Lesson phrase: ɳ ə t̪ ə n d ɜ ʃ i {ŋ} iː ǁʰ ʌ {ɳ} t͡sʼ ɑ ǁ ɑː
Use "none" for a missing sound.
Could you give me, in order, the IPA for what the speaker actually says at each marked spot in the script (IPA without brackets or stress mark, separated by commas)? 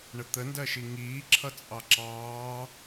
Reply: ŋ, none